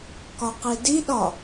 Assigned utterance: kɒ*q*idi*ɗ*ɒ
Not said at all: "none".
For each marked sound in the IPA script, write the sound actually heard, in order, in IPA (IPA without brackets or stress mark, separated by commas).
q, ɗ